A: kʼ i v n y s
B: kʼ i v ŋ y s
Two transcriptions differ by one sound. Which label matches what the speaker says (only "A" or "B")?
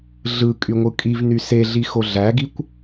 A